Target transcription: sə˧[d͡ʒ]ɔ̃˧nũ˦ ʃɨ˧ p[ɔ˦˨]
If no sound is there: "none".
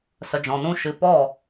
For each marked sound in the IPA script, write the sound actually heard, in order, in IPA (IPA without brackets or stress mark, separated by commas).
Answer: d͡ʒ, ɔ˦˨